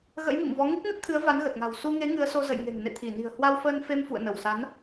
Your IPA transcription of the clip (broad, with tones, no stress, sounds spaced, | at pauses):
ɣ ə̰˧˥ j m ḭ˧˨ m v ɔ˨˦ ŋ i˦˥ k̚ n ə˦˥ t̚ t̪ʰ ɨ˨˦ ə̯ v a˨˦ n ɣ ə˨˩ t̚ ŋ a̤˨˩ w s u˧ ŋ e˨˦ ŋ ɨ˨˦ ə̯ s o˧ z ə̰˧˨ j ŋ e̤˨˩ ŋ n ḛ˧˨ t̪ʰ i˧˩ n i̤˨˩ ə̯ h w a˧ w f əː˧ n f e˧ m f ṵ˧˨ ə̯ n ə˧˩ w s a˨˦ n